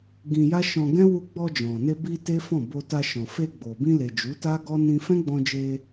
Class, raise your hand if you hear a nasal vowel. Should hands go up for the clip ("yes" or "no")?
yes